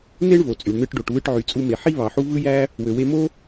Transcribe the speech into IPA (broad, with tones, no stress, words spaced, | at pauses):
ne˥ɳvo˩t͡sʼy˩ɳ nɯ˧ʈɖo˩ʈ βɯ˧ʈʕy˩ t͡sʼu˧me˩ ħi˥ βɑ˩ħu˥ vɯ˥jæ˥ | wø˩we˧mo˥